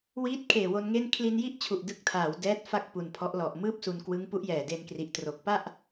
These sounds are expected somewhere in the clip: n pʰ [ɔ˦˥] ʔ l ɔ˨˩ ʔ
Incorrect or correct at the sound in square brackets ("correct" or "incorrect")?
correct